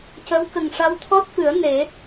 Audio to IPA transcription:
c ə˧˥ w k ə˨˩ ŋ ʂ a˧˥ w t̪ʰ ɔ˦˥ t̚ f ɨ˨˩˦ ə̯ n e˨˩˦

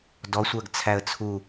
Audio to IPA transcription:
d ɔ sʷ ɜ ɡ t͡sʰ æ ə̯ t͡sʰ u

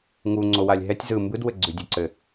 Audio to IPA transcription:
ŋ u ŋ͡ǀ o w a lʲ ɦ ɛ tʲ z ɯ m b ɯ d w ɘ ɡ͡ǀ ʉ dʲ ø ǀ ɘ

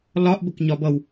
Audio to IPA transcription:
l ɒ ʔ b ə k ɲ ɒ b ʌ w

